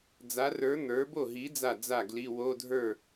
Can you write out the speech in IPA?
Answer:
d͡z a˨˥ r ə˞˨˥ n̪ ə˞˨˥ b o˥˩ ɦ i˨˥ d͡z a˥˩ d͡z a˥˩ ɡ l i˧˥˧ w o˧˥˧ dʱ ə˞˥˩

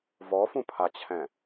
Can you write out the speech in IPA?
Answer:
v ɔ f ũ pʰ a t͡ɕʰ ɛ̃

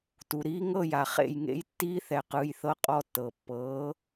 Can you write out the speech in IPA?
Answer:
t u˨ ɾ iː˦˥ ŋ ɤ˥˨ j a˨ χ ḛ˥˨ j ŋ ḛ˦˥ j tː iː˦˥ θ ɛ˨ q ɯː˨ j θ ɤ˦˥ qʼ ɔ˧˥˧ tː ɤː˨ pː ɤː˨˥

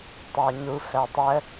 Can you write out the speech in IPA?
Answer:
tˤ æ ɲ u f æ tˤ ə

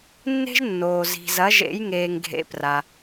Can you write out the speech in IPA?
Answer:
nː e̤˥ ʒ nː oː˨ z i̤˨ z ɐ˨˦ ʒ ḛ˨˦ j ŋ eː˨ ŋ ɡʱ ḛ˨˦ p r a˨

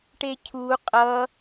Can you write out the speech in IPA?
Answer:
ʈ e cʰ u qʼ ʌ

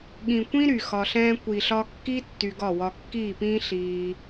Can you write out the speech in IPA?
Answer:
ɠ ĩ˨ kʷ ĩ˦ ɾ y˨ x ɒ˧ ɬ ɛ̃ː˦ kʷ i˨ ɬ ɒ˧ kː i˦ tː y˧ ɡ ɒ˦˨ w ɒ˧ kː iː˦˨ p ĩː˦ ɬ iː˧

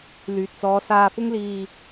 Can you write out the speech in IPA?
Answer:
l yː˨ t̚ t͡s ɔː˨˧ s aː˧ f ʊ˥ ŋ l iː˧

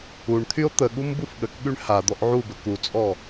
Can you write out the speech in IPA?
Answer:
u ɳ t̪ʰ y o̯ t̪ ə ɠ u m b u f ɠ ə k ɠ y ɳ h a d̪ ɔ ʔ ʕ u b ə k u t͡sʼ ɔ

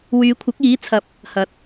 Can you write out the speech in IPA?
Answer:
w yː˨˧ kʷʰ ɐ˨˥ k̚ iː˨˥ t͡sʰ ɐ˧ p̚ | h ɐ˨˥ t̚

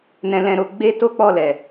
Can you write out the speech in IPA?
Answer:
n ɛ̃˧ l ɛ̃˧ ɾ o˧ ɡ͡b e˦ t o˦ k͡p ɔ˦˨ l ɛ˨

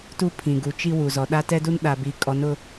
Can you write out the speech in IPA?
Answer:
t u˦ pʰ ĩ˨ ɡ u˨ t͡ʃ i˦ w u˨ z ɔ˨ ɗ a˦ t ɛ˦ d u˦ n ɗ a˨ b i˨˦ kʼ ɔ˨˦ n ʊ˦

